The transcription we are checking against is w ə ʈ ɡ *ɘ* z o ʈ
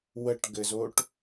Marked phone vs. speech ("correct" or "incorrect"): correct